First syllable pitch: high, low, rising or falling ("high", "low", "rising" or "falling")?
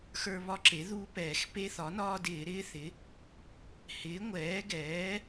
high